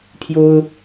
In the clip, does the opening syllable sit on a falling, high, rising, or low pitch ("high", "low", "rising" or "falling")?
high